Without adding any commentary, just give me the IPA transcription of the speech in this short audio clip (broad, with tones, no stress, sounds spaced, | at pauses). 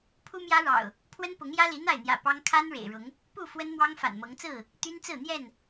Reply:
pʰ u˦ m j ä˦ ɻ ɑ̰˨˩ ʊ̯ | pʰ w ə˦ n p ʊ˨˦ ŋ j ä˦ l i˨˦ n̪ a˥˨ ɪ̯ n̪ j ä̰˨˩ p ɑ˦ ŋ kʰ a˦ n ɻ ḛ˨˩ ɪ̯ ɻ ʊ˨˦ ŋ | p u˥˨ f w ə˦ n m w ɑ˦ ŋ f a̰˨˩ n m ɤ˨˦ ŋ t͡s ɹ̩˥˨ | t̪ y˦ n t͡s ɹ̩˥˨ n̪ j ɛ˥˨ n